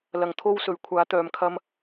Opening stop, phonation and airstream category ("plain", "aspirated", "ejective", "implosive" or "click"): aspirated